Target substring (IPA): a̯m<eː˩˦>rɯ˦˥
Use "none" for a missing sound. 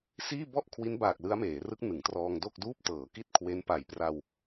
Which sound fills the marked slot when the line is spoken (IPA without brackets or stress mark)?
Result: eː˩˦